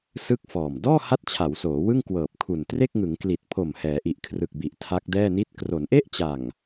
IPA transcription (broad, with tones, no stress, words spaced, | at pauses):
sɯ˥˩k̚ fɔː˨˩m dɔː˥˩ha˦˥t̚t͡ɕʰa˩˦w soː˩˦wɯ˥˩ŋ kwɤː˨˩p̚kʰu˨˩n tre˥˩k̚ŋɯ˩˦ŋkli˨˩t̚pʰo˨˩m hɛː˩˦ʔi˨˩ʔkʰrɯ˨˩k̚bi˨˩ʔ tʰa˦˥k̚dɛː˥˩ni˥˩t̚ kro˩˦nʔe˥˩ʔt͡ɕa˨˩ŋ